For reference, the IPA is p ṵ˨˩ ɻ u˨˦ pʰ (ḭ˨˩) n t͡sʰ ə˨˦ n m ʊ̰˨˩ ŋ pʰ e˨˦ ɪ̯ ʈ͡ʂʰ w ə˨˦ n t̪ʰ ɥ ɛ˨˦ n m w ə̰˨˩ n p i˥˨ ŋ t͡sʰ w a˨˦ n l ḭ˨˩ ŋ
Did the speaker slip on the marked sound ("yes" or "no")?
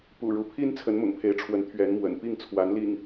yes